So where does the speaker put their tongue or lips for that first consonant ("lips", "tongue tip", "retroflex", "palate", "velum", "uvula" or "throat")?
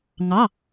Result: velum